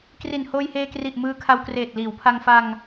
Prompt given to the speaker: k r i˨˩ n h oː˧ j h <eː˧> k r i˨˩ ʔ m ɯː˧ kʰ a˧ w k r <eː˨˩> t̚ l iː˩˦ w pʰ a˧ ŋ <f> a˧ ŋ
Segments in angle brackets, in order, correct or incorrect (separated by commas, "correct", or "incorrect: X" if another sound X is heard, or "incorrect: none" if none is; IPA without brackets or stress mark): correct, correct, correct